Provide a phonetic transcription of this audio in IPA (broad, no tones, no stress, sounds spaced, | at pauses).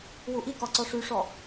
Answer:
w u ʔ i k ɒ ǀ ɔ ʂ y ʂ ɔ